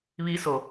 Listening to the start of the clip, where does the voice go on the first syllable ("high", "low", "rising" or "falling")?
rising